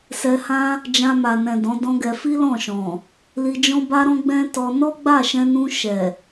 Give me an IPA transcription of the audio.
s ɛ˧ h ã˦ | d͡ʒ ã˧ m a˨ n ɛ̃˨ d ɔ̃˨˦ d ɔ̃˦ ɡ ɛ˧ f i˦ l ɔ̃˦˨ ʃ ɔ̃˨ | l i˧ d͡ʒ ɔ̃˦ b a˦ ɾ ɔ̃˦ ɡ͡b ɛ̃˦ t ɔ˧ n ɔ˦ ɡ͡b a˦˨ ʃ ɛ̃˧ n ũ˧ ʃ ɛ˨

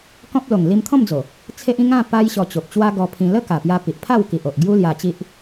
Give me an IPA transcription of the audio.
k ɔ̃˦ p̚ l o˨˩ ŋ l i˧ m t̪ʰ ɔ̃˥˧ m d͡z o˨˩ | t͡sʰ e˦ ʔ ĩ˦ ŋ ã˥˧ p a˦ j ɕ ɔ˧ t͡ɕ o˨ p̚ t͡ɕ w a˦ ɡ ɔ˧ pʰ ĩ˧ l ə˦ k a˨˩ p j a˧ p i˨ ʔ pʰ a˥˧ w k i˨ ʔ o˨ ʔ ɡ j u˦ l j a˧ t͡ɕ i˦ ʔ

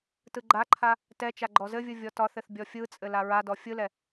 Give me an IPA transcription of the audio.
t ɯ ɡ͡ǃ a ǃʰ a | t ɛ t͡ʃ a ɡ͡ǃ ɔ z ɘ vʲ ɯ vʲ ɔ t ɒ θ ɘ θ bʲ ɔ fʲ ɯ t͡sʼ ɘ l a ɹ a d ɔ fʲ ɯ l ɛ

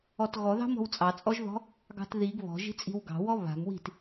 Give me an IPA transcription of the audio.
ɔ t ɣ ɔ ð ɑ̤ m ɔ̤ w t͡sʼ ɑ t͡sʼ ɔ ʒ ð ɔ̤ | ɡ ɑ̤ t ð i ɡ β ɔ̤ ʒ i̤ t͡sʼ i̤ w ɡ ɑ̤ w ɔ β a̤ m w i̤ t

